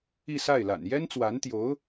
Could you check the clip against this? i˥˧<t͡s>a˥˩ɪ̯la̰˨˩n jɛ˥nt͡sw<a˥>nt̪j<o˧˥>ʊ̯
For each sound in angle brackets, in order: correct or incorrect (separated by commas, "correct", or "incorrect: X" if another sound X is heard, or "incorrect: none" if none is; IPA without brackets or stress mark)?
incorrect: s, incorrect: a˧˥, correct